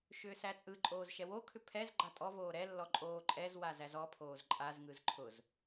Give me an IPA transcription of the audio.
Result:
ʃ ʏː s æ t͡sʼ ɯ ǃʼ oː z ʃ ɛ w o kʰ ʏ pʰ ɛ z ɡ͡ǃ a tʼ ɔ v oː ɾ ɛ lː ɔ ǃʼ oː ǃʼ ɛ z w a z æ z ɔ pʰ oː z ǃʼ a z ŋ ɯ z ǃʰ ʊ z

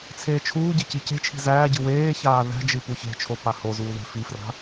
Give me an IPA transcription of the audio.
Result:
t͡sʰ eː t͡ʃʰ uː ɟ e c i c e̤ t͡ʃʰ i̤ z æː ɟ ɨ w eː ç aː ð æ̤ d͡ʒ ɨ p u ç e̤ t͡ʃʰ o p a h o z uː ð e̤ f i f r a̤

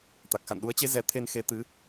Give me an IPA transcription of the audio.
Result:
t̪ a˨˩ k̚ x a̰˧˨ n ɗ u˨˦ ə̯ t͡ɕ e˨˦ z ɛ˨˦ t̪ʰ e˧ n x e˨˦ t̪ ɨ˨˦

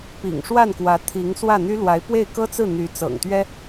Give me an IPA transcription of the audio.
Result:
p ḭ˨˩ ŋ ʂ w a˥˩ n k w ä˧˥ t̪ʰ i˧˥ ŋ s w ä˥˩ n̪ y˥ l w a˧˥ ɪ̯ p w e˥˩ ɪ̯ k ɤ˥ t͡s ɹ̩˥˩ n̪ y˧˥ t͡s ɤ̰˨˩ ŋ t̪ ɥ ɛ˥

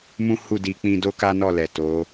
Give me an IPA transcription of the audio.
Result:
m ũ˦ h u˦˨ d i˧ k͡p ĩ˧ d o˦ k a˦ n ɔ˦˨ l ɛ˨ t o˨˦

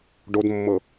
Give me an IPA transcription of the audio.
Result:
ɖ o d mː ɤ

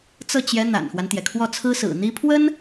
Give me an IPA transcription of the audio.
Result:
t͡s ɤ˥˩ t͡ɕ j ɛ˧˥ n̪ a̰˨˩ n x w a˦ n t̪ j ɛ˩ kʰ w ɔ˥˩ t͡sʰ ɹ̩˥ s ɹ̩˨˩ n̪ i˥ pʰ w ə˥ n

